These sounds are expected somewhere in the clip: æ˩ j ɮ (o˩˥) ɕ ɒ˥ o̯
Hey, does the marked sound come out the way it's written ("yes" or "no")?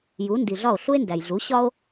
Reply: no